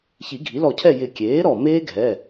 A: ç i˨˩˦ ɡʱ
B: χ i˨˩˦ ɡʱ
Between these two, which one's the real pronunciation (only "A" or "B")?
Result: A